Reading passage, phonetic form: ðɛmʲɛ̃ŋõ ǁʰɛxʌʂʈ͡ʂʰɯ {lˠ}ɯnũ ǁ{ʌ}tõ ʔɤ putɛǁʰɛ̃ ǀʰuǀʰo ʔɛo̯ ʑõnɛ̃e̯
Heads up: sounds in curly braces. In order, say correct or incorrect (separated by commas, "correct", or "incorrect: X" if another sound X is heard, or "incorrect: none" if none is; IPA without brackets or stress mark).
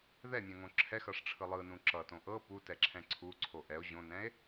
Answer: correct, correct